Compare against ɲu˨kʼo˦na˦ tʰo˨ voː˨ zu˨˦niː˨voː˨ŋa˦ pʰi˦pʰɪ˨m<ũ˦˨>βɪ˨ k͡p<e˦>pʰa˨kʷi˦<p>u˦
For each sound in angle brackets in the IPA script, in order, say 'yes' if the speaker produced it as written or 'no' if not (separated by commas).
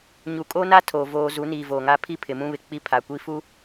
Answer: no, no, no